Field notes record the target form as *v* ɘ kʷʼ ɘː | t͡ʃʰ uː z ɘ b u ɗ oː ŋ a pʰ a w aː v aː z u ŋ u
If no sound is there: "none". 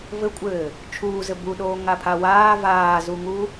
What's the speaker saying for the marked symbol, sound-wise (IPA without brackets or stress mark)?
v